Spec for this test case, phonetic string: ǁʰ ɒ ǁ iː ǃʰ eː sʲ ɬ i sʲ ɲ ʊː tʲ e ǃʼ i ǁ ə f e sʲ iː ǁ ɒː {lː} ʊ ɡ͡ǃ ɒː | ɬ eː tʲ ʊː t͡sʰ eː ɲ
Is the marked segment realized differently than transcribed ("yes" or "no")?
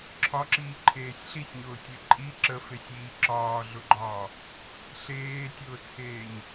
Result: yes